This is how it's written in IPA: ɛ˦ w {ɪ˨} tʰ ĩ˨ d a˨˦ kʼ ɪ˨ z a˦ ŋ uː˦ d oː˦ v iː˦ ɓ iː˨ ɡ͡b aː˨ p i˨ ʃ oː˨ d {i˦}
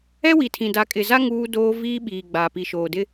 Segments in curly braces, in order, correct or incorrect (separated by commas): incorrect, incorrect